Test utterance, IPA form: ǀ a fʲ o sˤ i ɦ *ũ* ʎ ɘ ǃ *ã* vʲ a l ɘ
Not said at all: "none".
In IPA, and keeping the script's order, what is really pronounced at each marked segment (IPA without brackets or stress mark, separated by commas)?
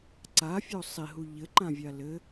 u, ã